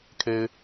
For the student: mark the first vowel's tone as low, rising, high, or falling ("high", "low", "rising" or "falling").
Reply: high